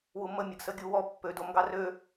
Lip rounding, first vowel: rounded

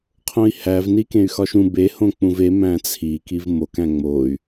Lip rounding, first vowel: rounded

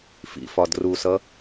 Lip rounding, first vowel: unrounded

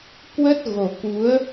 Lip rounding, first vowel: unrounded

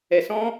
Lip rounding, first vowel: unrounded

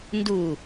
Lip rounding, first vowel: rounded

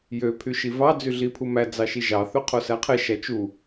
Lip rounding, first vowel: rounded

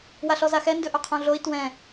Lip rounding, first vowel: unrounded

